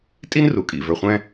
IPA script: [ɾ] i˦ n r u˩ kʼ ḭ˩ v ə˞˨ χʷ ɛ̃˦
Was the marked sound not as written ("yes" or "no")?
yes